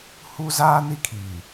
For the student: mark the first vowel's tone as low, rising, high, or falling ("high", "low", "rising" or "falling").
high